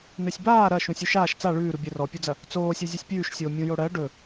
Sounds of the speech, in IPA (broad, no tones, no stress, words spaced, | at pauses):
nɵsʲbaː ɾɐ ʃũsʲʉʃaːʃ t͡sa ɭʉːɾu bʲɛrɔpʲud͡zɐ | t͡soːsʲɵ zʲɵsʲpʲʉːʃsʲoː mʲũjoɽɜ ɖɵ